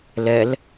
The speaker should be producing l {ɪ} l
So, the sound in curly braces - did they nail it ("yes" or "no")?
no